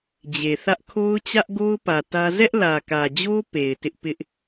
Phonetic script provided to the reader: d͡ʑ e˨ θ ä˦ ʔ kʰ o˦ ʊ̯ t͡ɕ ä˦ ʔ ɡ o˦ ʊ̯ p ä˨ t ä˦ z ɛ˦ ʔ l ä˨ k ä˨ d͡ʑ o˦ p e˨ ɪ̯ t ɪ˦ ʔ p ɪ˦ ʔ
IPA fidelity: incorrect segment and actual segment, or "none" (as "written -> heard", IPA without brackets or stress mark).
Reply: none